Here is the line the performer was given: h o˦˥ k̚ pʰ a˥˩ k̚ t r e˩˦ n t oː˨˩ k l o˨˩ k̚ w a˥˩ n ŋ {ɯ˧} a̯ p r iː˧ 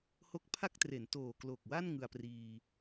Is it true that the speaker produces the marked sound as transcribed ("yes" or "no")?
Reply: yes